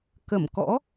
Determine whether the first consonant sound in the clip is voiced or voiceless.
voiceless